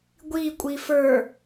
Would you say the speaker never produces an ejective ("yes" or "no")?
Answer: no